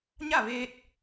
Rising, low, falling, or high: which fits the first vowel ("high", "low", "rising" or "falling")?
falling